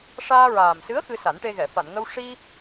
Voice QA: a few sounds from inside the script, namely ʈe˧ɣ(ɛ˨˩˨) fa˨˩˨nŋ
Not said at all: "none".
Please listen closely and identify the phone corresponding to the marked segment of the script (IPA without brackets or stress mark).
ɛ˨˩˨